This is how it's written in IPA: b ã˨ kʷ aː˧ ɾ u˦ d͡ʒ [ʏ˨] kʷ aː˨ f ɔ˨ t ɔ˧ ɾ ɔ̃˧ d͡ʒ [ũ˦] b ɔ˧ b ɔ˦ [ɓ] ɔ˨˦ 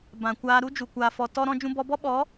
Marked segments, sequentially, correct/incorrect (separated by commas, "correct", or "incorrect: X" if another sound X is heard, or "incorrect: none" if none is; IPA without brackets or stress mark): incorrect: u˨, incorrect: ũ˧, correct